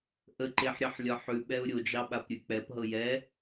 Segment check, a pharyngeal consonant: present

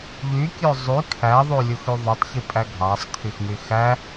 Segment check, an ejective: present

